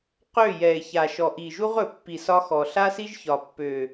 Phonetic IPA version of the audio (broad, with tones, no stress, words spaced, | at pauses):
qø˦˨ jɛ˨e̯ça˨ʃɔ˨ ʔi˨ʒu˦ʁɵ˨pːi˨ sɒ˦xɔ˨ ɬa˦si˦ʒ çɒ˨pːø˨